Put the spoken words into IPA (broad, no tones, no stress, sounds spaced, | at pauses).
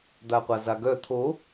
d̪ a qʷ a z a ɡ œ t̪ʰ o